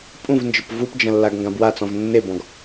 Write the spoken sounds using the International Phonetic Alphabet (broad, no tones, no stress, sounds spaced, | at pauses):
pʼ ũ v n d͡ʒ ə p v u p d͡ʒ ɐ̃ lː a ɡ ŋ ɡ ã b w a t͡s ɔ̃ v nː e b ɔ̃ ɡ